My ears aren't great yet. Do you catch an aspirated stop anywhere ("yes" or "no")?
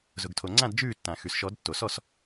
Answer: yes